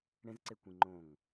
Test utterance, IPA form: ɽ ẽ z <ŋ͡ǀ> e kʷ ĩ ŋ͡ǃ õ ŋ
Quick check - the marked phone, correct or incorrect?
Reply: incorrect